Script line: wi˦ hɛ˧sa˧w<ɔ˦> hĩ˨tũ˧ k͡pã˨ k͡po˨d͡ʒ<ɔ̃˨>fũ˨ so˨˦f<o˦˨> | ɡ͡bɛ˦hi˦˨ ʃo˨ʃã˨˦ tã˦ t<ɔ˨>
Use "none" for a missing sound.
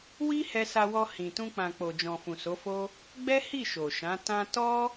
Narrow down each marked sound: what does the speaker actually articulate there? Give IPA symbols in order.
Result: ɔ˧, ɔ̃˨, o˦, ɔ˦

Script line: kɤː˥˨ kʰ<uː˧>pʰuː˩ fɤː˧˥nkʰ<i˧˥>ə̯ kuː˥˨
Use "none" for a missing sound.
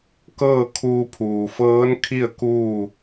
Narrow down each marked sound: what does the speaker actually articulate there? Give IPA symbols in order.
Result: uː˧, i˥˨

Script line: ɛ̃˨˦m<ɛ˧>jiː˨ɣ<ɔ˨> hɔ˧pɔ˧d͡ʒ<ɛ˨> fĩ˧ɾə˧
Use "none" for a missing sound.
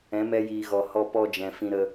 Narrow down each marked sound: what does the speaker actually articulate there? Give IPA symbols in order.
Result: ɛ˧, ɔ˨, ɛ̃˨

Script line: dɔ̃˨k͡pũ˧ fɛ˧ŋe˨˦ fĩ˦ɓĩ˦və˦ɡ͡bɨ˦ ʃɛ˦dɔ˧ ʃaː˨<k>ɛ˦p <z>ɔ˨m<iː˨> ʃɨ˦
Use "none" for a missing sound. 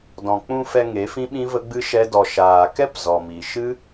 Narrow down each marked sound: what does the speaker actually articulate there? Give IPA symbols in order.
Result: k, z, i˨

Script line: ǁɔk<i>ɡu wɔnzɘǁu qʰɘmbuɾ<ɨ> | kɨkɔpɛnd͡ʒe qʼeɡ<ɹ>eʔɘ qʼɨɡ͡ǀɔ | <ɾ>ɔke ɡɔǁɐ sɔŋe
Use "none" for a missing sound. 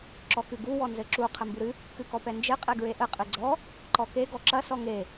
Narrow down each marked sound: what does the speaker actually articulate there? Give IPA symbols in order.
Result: ɨ, ɨ, ɹ, ǃ

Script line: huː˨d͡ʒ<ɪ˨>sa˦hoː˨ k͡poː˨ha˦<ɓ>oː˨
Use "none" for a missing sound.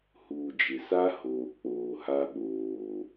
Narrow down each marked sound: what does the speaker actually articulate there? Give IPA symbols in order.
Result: ɪ˨, ɓ

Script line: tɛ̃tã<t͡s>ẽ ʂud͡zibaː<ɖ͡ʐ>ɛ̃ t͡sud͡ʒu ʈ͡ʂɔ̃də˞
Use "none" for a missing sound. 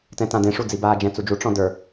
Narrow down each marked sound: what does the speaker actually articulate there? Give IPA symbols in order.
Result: d, d͡ʒ

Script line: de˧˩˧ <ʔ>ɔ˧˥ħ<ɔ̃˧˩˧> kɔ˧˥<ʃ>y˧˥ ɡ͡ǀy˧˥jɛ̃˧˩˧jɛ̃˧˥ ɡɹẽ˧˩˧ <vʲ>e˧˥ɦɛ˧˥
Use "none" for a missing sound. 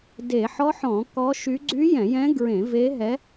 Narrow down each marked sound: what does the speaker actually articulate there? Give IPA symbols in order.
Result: ħ, ɔ̃˧˩˧, ʃ, v

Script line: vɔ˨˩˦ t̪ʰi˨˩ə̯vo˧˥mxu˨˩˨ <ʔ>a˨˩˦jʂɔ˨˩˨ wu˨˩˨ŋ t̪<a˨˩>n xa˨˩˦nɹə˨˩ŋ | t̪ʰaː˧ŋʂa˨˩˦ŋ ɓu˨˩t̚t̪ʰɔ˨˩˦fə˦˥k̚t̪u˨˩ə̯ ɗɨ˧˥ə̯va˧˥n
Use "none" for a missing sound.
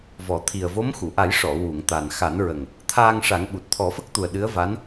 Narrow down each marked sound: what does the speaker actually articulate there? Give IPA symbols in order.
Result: ʔ, a˨˩

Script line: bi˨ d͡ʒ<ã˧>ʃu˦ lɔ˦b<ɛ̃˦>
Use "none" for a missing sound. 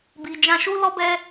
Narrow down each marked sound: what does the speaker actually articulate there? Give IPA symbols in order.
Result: ã˧, ɛ˦

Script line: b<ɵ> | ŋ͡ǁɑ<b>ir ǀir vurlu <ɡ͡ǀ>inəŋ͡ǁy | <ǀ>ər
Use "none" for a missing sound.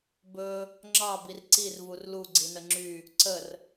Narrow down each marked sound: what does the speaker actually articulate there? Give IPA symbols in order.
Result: ɵ, b, ɡ͡ǀ, ǀ

